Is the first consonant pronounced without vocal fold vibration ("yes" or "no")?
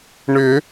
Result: no